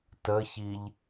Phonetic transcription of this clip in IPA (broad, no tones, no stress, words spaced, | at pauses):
təçiʎ